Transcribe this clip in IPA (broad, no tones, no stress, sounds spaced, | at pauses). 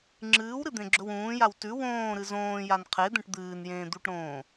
ŋ͡ǁ ɨː w ɾ ɨ d̪ ẽ ɡ͡ǁ ɵ w ũː j a w t ʉ w õː ɾ ɨ z õː j a n qʰ e d̪ ẽ ʈ d̪ ɨː n j ẽː d̪ u ʈ ɾ õː